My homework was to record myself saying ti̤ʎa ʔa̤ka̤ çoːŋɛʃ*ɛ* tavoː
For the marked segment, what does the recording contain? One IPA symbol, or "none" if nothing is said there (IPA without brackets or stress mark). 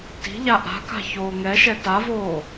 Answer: ɛ